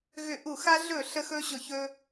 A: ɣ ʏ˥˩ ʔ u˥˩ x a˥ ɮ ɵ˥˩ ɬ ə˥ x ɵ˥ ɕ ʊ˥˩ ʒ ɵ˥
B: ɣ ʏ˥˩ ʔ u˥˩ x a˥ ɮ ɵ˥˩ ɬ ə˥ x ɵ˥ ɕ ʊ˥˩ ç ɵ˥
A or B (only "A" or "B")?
B